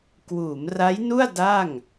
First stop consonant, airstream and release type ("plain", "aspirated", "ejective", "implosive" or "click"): plain